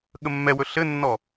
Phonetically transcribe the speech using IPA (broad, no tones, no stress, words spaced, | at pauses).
ɠəmːɛwɵ ɬɘnːɔ